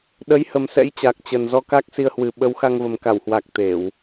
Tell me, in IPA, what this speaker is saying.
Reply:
ɗ ə˨˦ j h ə˨˩ m s ɛ̰˧˥ j t͡ɕ a˨˩ k̚ t͡ɕ ə˨˩ n z ɔ˧ k a˦˥ k̚ s i˧ ə̯ h w ɨ˨˩ ɓ ə˨˦ w x a˧ ŋ v ə˨˩ m k a˧˩ w h w a˨˩ k̚ t̪ e˧˩˨ w

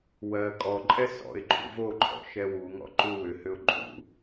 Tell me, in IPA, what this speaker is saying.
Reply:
w ɜ kʼ ɔ ǃʼ ɛ s ɔ̰ ɪ̯ ǃ ṵ v o ǃʰ ɔ̰ ʃ ɛ w u ŋ ɔ̰ ǃ u w ʏ h ʏ ʊ̯ ǃʼ ṵ

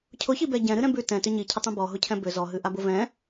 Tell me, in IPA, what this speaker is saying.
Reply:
cʰ ʊ ç i b ɛ ɟ ɛ̃ ɾ ɨ ɾ ɛ̃ b ʉ t ɛ̃ t ʏ ɲ i cʰ ʏ tˤ ɛ̃ b ɔ ɦ ʊ cʰ ɛ̃ b ʏ z ɔ ɦ ɨ ʔ a b ʊ v ɛ̃

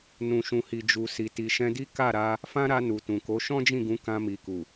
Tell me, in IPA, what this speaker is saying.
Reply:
n ũ˨ ʃ ũ˨ h i˨ d͡ʒ u˨ s i˨ t i˨ ʃ ɛ̃˧ d i˦ k a˦˨ ɾ a˧ | f ã˦ ɾ a˧ n u˨ t ũ˨ k o˨˦ ʃ ɔ̃˦ d͡ʒ ĩ˦˨ ɡ ũ˨˦ k ã˧ m i˨ k u˨

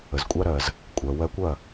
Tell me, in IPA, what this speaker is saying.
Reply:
ə˩ z kʷʼ a˧ ɾ ɜ˩ z | kʷʼ ɜ˩ w ɜ˧ kʷ ɐ˥˩

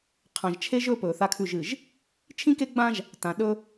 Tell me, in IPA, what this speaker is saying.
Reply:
qʰ ã˨ ʒ t͡ʃʰ e˦ ʒ ɵː˦ p ɵː˨ θ a˦ kʰ ʉ˦˨ ʒ ɨ˨ ʒ | t͡ʃʰ ĩ˦ k e˦ ɡ͡b ãː˦ ʒ | t ã˨ ɗ ɵ˦

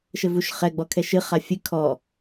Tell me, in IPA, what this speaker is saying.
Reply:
ʃ ɘ v u ʃ χ ɛ ɡ͡b ɔ kʰ ɛ ʃ ɨ χ a fʲ ɨ kʰ ɔ

